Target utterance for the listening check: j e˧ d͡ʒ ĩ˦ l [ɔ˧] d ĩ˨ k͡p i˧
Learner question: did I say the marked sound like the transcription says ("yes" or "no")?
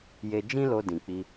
no